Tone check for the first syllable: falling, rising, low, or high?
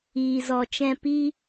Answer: low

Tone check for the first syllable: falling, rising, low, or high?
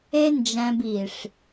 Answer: high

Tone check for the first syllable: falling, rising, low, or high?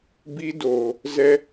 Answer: high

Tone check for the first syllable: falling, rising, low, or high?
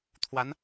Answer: rising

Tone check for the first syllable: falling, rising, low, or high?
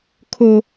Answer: high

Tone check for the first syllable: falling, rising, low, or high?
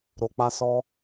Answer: low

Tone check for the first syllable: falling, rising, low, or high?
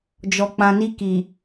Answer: low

